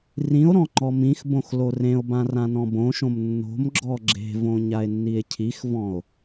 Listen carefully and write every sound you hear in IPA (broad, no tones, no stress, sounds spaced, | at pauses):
r ĩ o̯ ɾ ɔ̃ ŋ͡ǃ ɔ m ĩ x b õ x l o r ẽ o̯ b ã r ã n ɔ̃ b õ ʃ õ m nː o̤ m ɡ͡ǁ ɔ ɡ͡ǁ e̤ v õ ɲ a e̯ nː i e̯ cʰ i x v ɔ̃ o̯